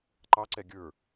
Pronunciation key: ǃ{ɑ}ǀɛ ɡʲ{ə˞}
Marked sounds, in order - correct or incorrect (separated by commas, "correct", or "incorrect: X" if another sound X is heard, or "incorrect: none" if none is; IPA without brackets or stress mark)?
correct, correct